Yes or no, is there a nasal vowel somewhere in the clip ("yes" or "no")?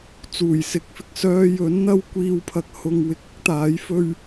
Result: no